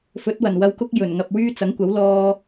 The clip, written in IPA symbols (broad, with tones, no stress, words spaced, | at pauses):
fɵ˨˥t̚ wɐ˨˩nwɐ˧wkʊ˥k̚ jɵ˨˩nŋɐ˨p̚wyː˥ t͡sɐ˨˥ŋkʷɐ˨˥w lɔː˧